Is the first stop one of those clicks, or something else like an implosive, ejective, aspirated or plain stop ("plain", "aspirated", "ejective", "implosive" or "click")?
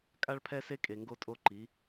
ejective